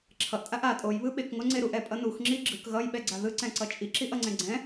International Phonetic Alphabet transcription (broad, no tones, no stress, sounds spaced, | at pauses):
ǁʰ ʌ ʔ tʼ a ʔ a tʼ o j β ɯ ɓ e k ŋ o ŋ͡ǀ e ɾ u ʔ ɛ pʼ ʌ n u x ŋ͡ǁ i ɡ͡ǁ ɯ k ɣ ʌ j ɓ ɛ ɡ͡ǀ a ð ɯ ǀ ɛ̃ ǀ ʌ t͡ʃʼ i ǁ i ʔ ʌ ŋ͡ǀ ɛ̃ ɡ͡ǀ ɛ̃